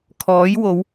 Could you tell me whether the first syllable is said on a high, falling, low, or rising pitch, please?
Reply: rising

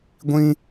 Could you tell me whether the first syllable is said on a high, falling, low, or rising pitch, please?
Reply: high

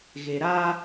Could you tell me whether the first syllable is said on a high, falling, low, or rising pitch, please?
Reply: low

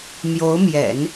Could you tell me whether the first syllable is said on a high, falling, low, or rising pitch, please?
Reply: rising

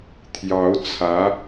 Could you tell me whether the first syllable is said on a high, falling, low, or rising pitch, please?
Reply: rising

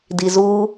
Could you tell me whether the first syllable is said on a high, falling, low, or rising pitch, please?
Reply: low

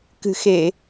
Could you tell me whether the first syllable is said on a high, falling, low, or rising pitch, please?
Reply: low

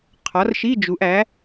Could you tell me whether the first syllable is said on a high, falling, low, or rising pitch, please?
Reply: rising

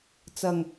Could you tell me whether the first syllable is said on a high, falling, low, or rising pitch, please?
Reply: low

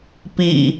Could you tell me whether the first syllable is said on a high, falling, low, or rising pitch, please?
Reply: low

